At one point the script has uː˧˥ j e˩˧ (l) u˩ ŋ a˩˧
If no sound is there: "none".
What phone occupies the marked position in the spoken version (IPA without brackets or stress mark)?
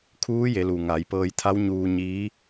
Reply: l